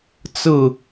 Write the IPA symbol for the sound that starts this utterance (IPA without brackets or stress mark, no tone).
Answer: t͡s